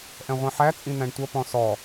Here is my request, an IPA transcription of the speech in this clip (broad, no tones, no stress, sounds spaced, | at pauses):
ʔ ɛ̃ ʁʷ ĩ ħ æ t͡sʼ ĩ n̪ æ̃ ɳ tʷ ʌ p ɔ̃ s ɔ